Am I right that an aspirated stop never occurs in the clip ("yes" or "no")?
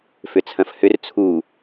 no